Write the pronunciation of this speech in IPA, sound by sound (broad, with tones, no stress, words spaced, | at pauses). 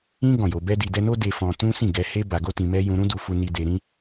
ĩ˦ ɡɔ̃˦˨jo˧ bɛ˧di˨dɛ˧no˦ de˦ fɔ̃˧tũ˦ sĩ˦˨ɡɛ˧he˦ ba˧ɡo˦tĩ˧mɛ˦ jũ˧ɾũ˦du˧ fu˦ni˦ de˧ɾĩ˦